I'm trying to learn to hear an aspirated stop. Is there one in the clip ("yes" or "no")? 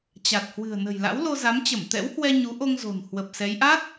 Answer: no